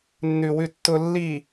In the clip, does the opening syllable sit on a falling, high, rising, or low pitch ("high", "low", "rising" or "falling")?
low